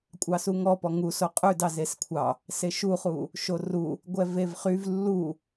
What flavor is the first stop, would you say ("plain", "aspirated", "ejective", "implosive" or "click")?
ejective